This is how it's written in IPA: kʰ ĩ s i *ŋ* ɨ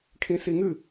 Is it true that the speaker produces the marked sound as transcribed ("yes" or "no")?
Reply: yes